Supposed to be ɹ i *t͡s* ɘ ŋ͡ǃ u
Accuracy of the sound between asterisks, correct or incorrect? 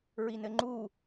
incorrect